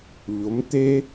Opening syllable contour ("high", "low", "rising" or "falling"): rising